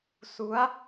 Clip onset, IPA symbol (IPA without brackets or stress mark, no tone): s